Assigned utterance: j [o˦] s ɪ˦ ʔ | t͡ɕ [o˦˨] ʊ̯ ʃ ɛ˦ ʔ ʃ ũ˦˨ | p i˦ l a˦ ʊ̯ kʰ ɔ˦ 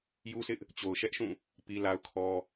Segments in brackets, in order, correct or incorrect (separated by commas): incorrect, incorrect